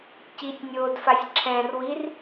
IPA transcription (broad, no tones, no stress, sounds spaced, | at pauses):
c i tʲ nʲ oː d f a sʲ ǁʰ ɛ̃ r w i r